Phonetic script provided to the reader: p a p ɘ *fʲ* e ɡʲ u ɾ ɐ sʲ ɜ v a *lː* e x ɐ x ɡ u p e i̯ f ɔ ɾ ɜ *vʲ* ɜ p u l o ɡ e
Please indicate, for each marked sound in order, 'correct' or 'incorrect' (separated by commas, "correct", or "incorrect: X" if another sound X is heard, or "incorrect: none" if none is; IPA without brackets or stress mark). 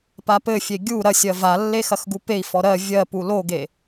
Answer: correct, correct, correct